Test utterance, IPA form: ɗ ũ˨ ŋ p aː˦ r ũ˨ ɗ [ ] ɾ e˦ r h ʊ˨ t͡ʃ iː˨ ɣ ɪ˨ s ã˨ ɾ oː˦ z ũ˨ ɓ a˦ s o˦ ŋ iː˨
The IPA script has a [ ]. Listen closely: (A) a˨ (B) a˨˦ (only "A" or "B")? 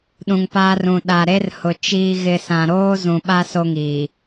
A